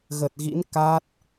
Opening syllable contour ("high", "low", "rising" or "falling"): low